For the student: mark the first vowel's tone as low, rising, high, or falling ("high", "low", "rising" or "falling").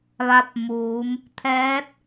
rising